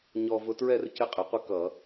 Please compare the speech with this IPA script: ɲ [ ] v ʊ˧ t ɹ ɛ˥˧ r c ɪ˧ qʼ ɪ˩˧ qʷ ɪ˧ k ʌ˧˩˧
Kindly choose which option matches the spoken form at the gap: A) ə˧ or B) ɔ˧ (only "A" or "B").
B